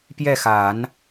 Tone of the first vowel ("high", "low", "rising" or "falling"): falling